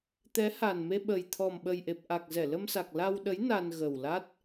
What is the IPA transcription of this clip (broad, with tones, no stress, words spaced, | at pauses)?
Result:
t̪ɛ˨˦ha˨˩nme˧ ɓə˨˩jt̪ʰɔ˨˩mɓə˨˩jʔe˨˩p̚ ʔa˨˩k̚zɛ˧˩ lə˧msa˨˩k̚ la˧wɗə˨˦j na˧n ɣə˨˩wla˦˥t̚